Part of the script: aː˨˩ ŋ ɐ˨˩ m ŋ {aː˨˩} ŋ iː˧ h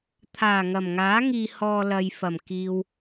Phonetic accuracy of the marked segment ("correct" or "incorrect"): incorrect